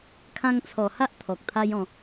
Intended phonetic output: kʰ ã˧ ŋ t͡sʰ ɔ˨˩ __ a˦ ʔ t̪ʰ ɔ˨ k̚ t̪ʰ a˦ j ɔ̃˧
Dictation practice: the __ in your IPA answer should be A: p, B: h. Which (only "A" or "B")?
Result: B